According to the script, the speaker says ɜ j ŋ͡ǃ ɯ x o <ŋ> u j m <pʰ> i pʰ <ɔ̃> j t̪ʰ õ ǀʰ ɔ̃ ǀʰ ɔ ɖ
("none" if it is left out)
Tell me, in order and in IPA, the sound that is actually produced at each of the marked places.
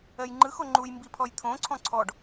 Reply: ŋ͡ǃ, b, ɔ

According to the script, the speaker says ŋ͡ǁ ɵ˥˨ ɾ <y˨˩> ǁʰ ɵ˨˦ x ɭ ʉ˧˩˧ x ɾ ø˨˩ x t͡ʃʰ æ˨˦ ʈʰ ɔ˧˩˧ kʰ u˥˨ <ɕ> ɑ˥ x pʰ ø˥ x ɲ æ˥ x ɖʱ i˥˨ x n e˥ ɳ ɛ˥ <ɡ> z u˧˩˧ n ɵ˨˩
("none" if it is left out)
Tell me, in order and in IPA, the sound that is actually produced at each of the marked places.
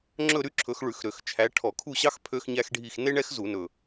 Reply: y˥, ɕ, x

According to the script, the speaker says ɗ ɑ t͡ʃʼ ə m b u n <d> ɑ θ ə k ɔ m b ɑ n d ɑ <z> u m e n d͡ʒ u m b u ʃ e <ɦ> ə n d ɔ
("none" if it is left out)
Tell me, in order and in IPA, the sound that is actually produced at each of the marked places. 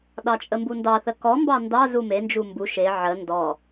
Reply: d, z, ʕ

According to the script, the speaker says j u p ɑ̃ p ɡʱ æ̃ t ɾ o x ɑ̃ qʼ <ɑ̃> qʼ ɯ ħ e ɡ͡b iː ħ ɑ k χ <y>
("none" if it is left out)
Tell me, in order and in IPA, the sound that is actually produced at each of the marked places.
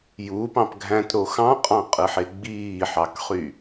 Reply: ɑ̃, y

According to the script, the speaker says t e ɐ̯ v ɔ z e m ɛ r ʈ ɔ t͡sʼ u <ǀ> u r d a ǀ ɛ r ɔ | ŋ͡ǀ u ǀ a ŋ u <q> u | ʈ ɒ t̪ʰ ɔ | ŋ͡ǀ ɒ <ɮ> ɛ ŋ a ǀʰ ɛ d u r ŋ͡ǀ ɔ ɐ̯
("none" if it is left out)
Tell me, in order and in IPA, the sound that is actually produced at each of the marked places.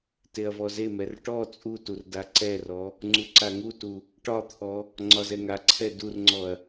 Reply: t, t, z

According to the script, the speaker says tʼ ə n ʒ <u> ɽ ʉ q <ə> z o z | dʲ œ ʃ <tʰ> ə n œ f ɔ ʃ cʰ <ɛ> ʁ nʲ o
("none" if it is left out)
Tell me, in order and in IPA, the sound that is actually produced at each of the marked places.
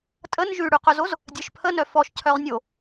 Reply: ʉ, œ, pʰ, œ

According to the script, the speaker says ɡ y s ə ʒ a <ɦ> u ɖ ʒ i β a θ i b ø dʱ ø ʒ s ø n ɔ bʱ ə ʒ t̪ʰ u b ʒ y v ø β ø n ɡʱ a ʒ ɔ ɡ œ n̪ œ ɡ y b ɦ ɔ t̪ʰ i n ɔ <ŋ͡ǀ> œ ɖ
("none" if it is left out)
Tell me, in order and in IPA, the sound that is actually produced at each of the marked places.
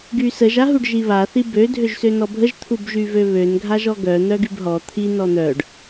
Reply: ɦ, n̪

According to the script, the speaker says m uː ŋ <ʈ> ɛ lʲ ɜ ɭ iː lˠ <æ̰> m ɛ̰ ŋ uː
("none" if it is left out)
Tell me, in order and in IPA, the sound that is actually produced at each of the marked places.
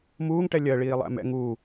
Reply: ʈ, æ̰

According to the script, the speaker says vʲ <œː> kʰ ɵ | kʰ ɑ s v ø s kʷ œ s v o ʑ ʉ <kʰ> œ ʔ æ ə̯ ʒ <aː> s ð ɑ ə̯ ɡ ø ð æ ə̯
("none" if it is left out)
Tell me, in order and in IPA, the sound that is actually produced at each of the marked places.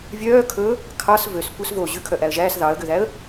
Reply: œː, kʰ, æː

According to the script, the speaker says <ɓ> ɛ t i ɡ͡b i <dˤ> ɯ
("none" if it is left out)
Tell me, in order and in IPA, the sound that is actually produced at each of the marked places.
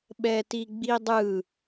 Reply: ɓ, dˤ

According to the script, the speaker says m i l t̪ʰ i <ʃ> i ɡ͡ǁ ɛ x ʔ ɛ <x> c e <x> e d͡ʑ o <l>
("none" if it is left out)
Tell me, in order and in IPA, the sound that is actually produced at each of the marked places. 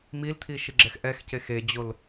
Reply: ʃ, x, x, l

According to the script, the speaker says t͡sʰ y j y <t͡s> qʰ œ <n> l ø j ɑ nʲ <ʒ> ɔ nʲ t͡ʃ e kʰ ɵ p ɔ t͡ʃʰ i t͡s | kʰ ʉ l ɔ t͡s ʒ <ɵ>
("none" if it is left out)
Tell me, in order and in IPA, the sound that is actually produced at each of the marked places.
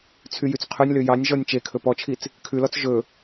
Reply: t͡s, nʲ, ʒ, ɵ

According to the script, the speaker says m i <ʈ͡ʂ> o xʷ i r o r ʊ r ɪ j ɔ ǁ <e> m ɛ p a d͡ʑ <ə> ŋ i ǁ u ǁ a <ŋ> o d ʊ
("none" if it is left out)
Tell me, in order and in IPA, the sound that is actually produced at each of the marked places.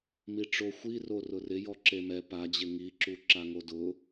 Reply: ʈ͡ʂ, e, ɪ, ŋ

